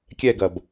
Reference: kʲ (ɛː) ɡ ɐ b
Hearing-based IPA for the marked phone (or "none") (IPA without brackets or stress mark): ɛ